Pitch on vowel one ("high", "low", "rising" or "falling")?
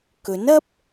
rising